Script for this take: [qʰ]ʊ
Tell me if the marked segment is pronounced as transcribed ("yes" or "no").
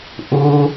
no